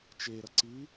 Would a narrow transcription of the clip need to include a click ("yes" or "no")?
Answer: yes